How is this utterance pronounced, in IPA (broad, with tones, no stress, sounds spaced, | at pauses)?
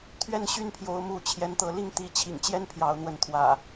t̪ʰ ɥ ɛ˥˨ n ɕ y˦ n pʰ j o˨˦ ʊ̯ m u˨˦ t͡ɕʰ j ɛ˨˦ n t̪ ɤ˨˦ l i˥˨ ŋ t̪ i˨˦ t͡ɕʰ ḭ˨˩ ŋ t͡ɕ j ɛ˦ n pʰ j ɑ˨˦ ʊ̯ n̪ w ə˨˦ n t̪ʰ w ä̰˨˩